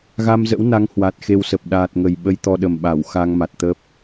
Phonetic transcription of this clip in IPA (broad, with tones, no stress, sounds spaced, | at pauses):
ɣ a˧ m z ə̰˧˥ w n a˨˦ ŋ h w a˨˩ t̚ x e˧ w s ə˨˩ p̚ ɗ aː˨˩ t̚ ŋ ə˨˩ j ɓ ə˧ j t̪ ɔ˧ ɗ ə˨˩ m ɓ a˧˩ w x a˧ ŋ m a˨˩ t̚ t̪ ə˦˥ p̚